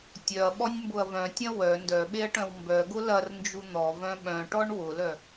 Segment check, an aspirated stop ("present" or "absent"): absent